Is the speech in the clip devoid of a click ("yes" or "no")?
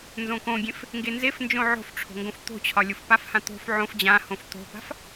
yes